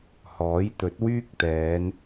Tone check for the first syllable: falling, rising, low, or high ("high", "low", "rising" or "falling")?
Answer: rising